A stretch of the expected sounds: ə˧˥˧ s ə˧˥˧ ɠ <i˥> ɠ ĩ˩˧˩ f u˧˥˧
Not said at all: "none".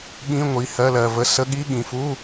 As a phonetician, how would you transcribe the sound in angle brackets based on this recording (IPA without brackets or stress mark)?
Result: i˧˥˧